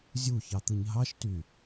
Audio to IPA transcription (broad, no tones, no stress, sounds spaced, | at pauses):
zʲ u ç ɑ t̪ ɯ ɲ ɦ ɑ ʃ t y